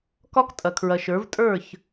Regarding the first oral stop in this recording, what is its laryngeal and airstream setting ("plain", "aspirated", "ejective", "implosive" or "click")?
plain